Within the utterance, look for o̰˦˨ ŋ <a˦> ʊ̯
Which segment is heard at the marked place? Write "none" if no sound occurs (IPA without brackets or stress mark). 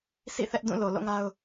a˦